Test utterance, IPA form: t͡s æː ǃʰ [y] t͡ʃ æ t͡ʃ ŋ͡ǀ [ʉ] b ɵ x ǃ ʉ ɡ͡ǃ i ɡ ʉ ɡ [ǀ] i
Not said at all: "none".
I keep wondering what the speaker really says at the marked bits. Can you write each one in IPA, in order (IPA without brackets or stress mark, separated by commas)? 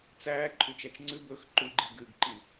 y, ʉ, ǃ